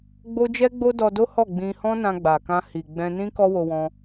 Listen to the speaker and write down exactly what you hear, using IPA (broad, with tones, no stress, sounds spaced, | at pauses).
ɡ͡b o˦ d͡ʒ ɛ˦ ɡ͡b o˦ d ɔ˧ d o˦ h ɔ˦˨ ɡ͡b ĩ˧ h ɔ̃˦ n ã˧ ɡ͡b a˨ k ã˧ h i˨ ɡ͡b ɛ̃˧ n ĩ˦ k ɔ˦ w o˧ w ɔ̃˧